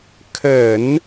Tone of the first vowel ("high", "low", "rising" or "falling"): low